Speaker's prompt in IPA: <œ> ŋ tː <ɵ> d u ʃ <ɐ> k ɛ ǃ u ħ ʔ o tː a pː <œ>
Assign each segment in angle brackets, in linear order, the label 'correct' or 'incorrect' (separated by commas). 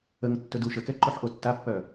incorrect, correct, incorrect, correct